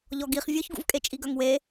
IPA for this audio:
ʎ ɔ ɡ i χ vʲ ɔ ç ɡ ṵ v kʼ e t͡ʃʼ i ɡ œ ŋ w e

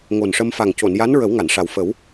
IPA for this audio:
ŋ o˨˩ n ʂ ə˧ m f a˨˩ ŋ c o˨˩˨ n j a˧˥ n ɹ ə˨˩˦ w ŋ a˨˩˨ n ʂ a˨˩ w f ə˨˩˦ w

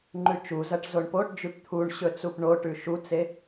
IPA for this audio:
ŋ͡ǃ ʉ t͡ʃ u z ɐ ʈ z o ɳ p o ʈ d͡ʒ ʉ p t̪ʰ u ɳ ɕ ɵ t͡s u p ɳ o ʈ ʉ ʃ u t͡s e

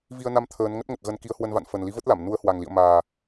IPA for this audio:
v i˧ ə̯ n a˧ m t̪ʰ əː˨˦ n ŋ ə˦˥ t̚ ŋ ə˨˩ t̚ ɣ ə˨˦ n k i˨˦ ə̯ h w ə˧ n v a̰˧˨ n f ə˨˩ n l i˨˦ v ə˦˥ t̚ l a˧˩ m n u˨˦ ə̯ h w a˨˩ ŋ l ḭ˧˨ ə̯ m aː˨˩

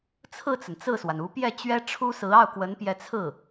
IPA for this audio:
t͡sʰ ɹ̩˥˩ t͡s ə˩ n t͡s ɹ̩˥˩ s w a˩ n u˧˥ p j ɛ˥˩ t͡ɕ ɥ ɛ˥ ʈ͡ʂʰ u˥ s ɹ̩˧˥ ɑ˥˩ ʊ̯ k w ə˧˥ n p j ɛ˧˥ t͡sʰ ɹ̩˥˩

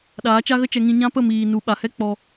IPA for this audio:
ɗ aː˨˦ t͡ʃ a˦ ɣ ə˦ t͡ʃ ɛ˧ ŋ ĩ˧ ɲ ã˦ p ə˦˨ m iː˨ n u˨ ɓ a˨ h ɛ˦ k͡p ɔ˧

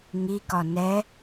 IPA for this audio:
ŋ i k ɒ n ɛ

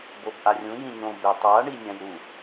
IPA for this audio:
b o b ʔ a rʲ ũ j ĩ ɲ õ b e tˤ a ɳ i nʲ ã j ɾ u

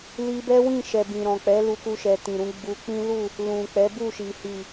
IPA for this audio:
l i˧ b ɛ˦ w ĩ˦˨ ʃ ɛ˨ b ĩ˨ ɾ ɔ̃˨ k͡p ɛ˨˦ l u˧ k u˧ ʃ ɛ˨ t ĩ˨ ɾ ũ˨˦ ɡ͡b u˧ k͡p ĩ˦ l u˦˨ | l ũ˨ k͡p ɛ˨˦ b u˦˨ ʃ i˨ h i˨

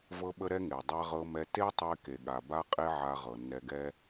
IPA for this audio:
v ɤ˧ ɓ ə˧ ɾ ɛ˧ ŋ e˩ dˤ a˧ ʁ ɤ˧ m ɛ˧ t e˥ tˤ e˧ k e˩ ɠ a˩ b a˧ qʼ e˧ ʕ a˧ ʁ ɤ˩ nː ɛ˧ ɡ ɛ˥

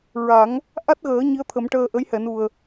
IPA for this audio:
ɹ a˨˩˦ ŋ | ʔ a˦˥ t̚ ɣ əː˨˩˦ ɲ i˧˥ ə̯ t̪ʰ ə˨˩˦ m ʈ əː˧ ʔ ə˧˥ j h ɛ˨˩˨ n u˨˩ ə̯

